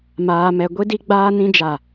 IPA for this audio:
m aː˨ m ɛ˨ ɡʷ i˦ d i˦ ɡ͡b aː˦ n ĩ˦ d͡ʒ a˦˨

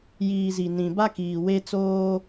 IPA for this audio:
j iː˨ z i˨ n ĩ˨ b a˦ k iː˨ w e˦ t͡s oː˦

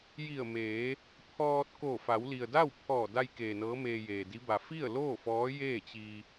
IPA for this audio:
j i˧˩ ə̯ m eː˩˧ | pʰ ɔː˧ t̚ k oː˧˩ f a˩˧ w l i˩ ə̯ d a˥˨ w pʰ ɔː˧˩ d a˧ j k eː˩ n ɤː˧˥ m eː˧ j eː˩ d i˧˥ b a˩ f i˥˨ ə̯ l oː˥˨ f ɔː˧˥ j eː˥˨ t͡ɕ i˧

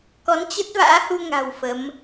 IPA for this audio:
k ɔ˨˦ n t͡ɕ ə˦˥ t̚ v a̰ː˧˥ h u˧ ŋ a̤˨˩ w f ə˨˦ m

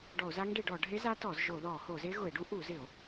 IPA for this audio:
ɖ ɔ˧˩˧ o̯ z a˦˥ ŋ ɖ e˧˩˧ ɖ ɔ˧˩˧ ɖʱ e˦˥ z a˦˥ t ɔ˧˩˧ z ʒ o˧˩˧ ð ɔ˧˩˧ h o˧˩˧ z e˦˥ ɣ ʊ˧˩˧ e̯ ɖ u˦˥ ʔ u˧˩˧ z ɪ˧˩˧ o̯

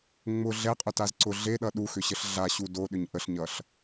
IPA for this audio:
ŋ͡m ʊ ɮ ɛ qʼ ʊ t a z ǀ ʊ ɮ e ɗ ʌ ɗ u x ʏ ɕ ə ɬ ɮ a ɕ u d o ɗ ʏ ɲ ʔ ə ɬ ɲ ʌ ɬ

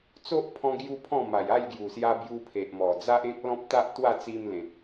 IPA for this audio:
t͡s o˦ ʔ pʰ ɔ̃˧ ɡ j u˦ pʰ ɔ̃˥˧ m a˨˩ j a˥˧ j ɡ j u˨˩ s j a˧ b j u˧ pʰ e˨ ʔ m ɔ˨˩ d͡z a˦ ʔ ẽ˦ k̚ l ɔ̃˦ p̚ t̪ a˦ ʔ t̪ w a˥˧ t͡s i˧ m l ẽ˨ t̚

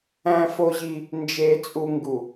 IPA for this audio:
æ̃˦ f o˦ ʑ i˦ | n d͡ʒ e˦ t͡sʼ u˦ ŋ ɡ u˨

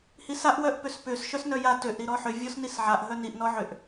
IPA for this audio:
h i s a ʔ w œ ʔ p ʏ s p ʏ s ʃ œ s n œ j a t ø ʔ ɾ i ɾ ɔ ħ ʏ vʲ ɔ s n i s ʕ a ʔ ɦ œ n i ʔ n ɔ ʕ ʏ ʔ

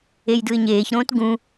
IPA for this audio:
e j d ɯ ɪ̯ ɲ eː ç ɾ õː t ɡ ũ

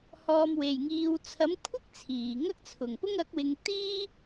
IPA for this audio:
h ɔː˨ m w e˨˩ j ŋ iː˨ w t͡sʰ ɐ˨˥ m kʷʰ ɪ˥ k̚ t͡sʰ iː˨˩ ŋ ɐ˥ k̚ t͡sʰ ʊ˨˩ ŋ p ʊ˥ ŋ ɐ˨˥ k̚ w ɪ˨˧ ŋ t̪ iː˥

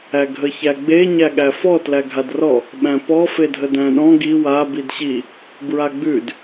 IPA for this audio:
æ ɡʱ ə ç æ ɡ͡b e ɲ æ ɠ æ f ɔ t l æ ɡʱ a d r ɔ | ɓ æ̃ p ɔ f e dʱ ə d æ̃ ɗ ɔ̃ ɡ i w a b i d ɕ i | b ɹ a ɡ͡b ʉ d

